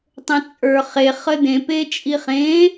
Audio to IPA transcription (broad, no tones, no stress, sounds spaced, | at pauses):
tˤ ə̃ t͡sʼ ə˞ χ e χ ə d ẽ p e t͡ʃʼ i χ ẽ